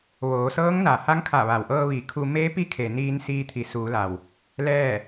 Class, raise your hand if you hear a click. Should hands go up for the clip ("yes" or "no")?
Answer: no